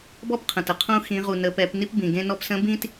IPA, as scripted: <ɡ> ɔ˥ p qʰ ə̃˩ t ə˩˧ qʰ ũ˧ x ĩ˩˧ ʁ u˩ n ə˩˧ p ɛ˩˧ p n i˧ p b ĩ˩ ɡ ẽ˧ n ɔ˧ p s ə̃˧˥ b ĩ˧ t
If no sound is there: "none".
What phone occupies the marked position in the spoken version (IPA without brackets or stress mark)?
b